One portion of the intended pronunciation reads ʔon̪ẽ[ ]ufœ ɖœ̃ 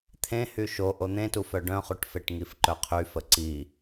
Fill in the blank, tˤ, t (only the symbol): t